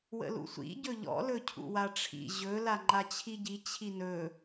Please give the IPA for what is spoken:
wə̰lṵsʷḭ ɟɵʎɔ̰ lɵcʰṵwaʈ͡ʂʰḭ ʑɵ laŋ͡ǃat͡ɕʰiɟi t͡ɕʰinɵ

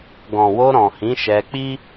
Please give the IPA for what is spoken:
ɡɔ̃˨wo˧ɾɔ̃˨hĩ˨˦ ʃɛ˧k͡pi˦

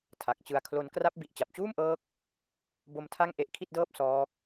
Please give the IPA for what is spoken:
tʰa˨˩k̚t͡ɕɯ˧a̯kʰlo˦˥n kra˦˥p̚ bi˨˩ʔt͡ɕa˨˩p̚t͡ɕuː˥˩mʔɤː˦˥k̚ | bo˦˥mtʰa˥˩ŋ ʔe˦˥ʔkʰi˥˩t̚dɤː˥˩p̚ sɔː˦˥k̚

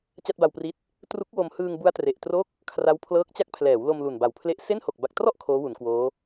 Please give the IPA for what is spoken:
t͡ɕa˥˩t̚ba˧wpri˦˥t̚ | tru˦˥k̚wo˧m hɯː˧ŋbu˦˥a̯ tre˨˩ʔtro˥˩k̚ | kʰra˦˥wpʰlɤː˦˥k̚t͡ɕa˥˩k̚ pʰlɛː˩˦wlo˧m lu˨˩nba˨˩wpʰle˥˩ʔ se˥˩nho˨˩k̚ ba˨˩k̚trɔ˥˩ʔ kʰoː˦˥wu˩˦nkwoː˦˥

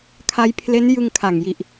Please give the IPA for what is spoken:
kʰa˦˥jpʰle˦˥n jɯ˧ŋkʰa˨˩ŋji˨˩ʔ

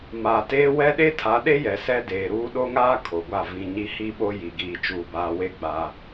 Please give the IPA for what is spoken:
ma˨teː˦ wɛ˦ɗe˦tʰa˨˦ɗe˦ jɛ˨sɛ˦ deː˨ɾuː˦ ɗo˦ŋaː˦ kʰo˨ɡʷa˦˨ vĩ˨ ɲi˦hi˦ɓo˦ji˨ ɡiː˨ t͡ʃuː˨baː˨we˦ ɡ͡ba˦

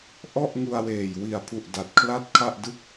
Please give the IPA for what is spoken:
ʔɔ˥˩ʔŋu˧a̯weː˨˩j wi˨˩a̯pʰu˨˩ʔ da˨˩t̚kʰla˥˩t̚kʰa˥˩ʔdɯ˥˩k̚

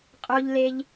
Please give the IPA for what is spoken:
qʼo˧ʎle˧ʎ

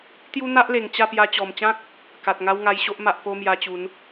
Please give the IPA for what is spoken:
t̪ju˦n̪a˦ʔle˨˩ŋ t͡ɕa˥˧pja˧ t͡ɕɔ˨˩mt͡ɕã˦k̚ | ka˨t̚ ŋa˦wŋa˧j ɕo˦ʔ ma˨ʔpo˧ mja˧t͡ɕu˨˦n

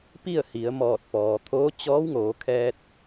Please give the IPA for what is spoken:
pi˥˨ə̯hi˩˧ə̯ mɔː˧˩t̚pɔː˩t̪ʰoː˧˥ t͡ɕɔː˧˥wŋoː˩˧kʰɛː˧t̚

